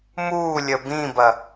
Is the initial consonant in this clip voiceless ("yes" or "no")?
no